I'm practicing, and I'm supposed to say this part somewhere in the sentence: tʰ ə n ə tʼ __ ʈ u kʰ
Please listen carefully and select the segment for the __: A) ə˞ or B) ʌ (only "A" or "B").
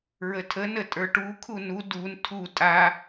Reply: A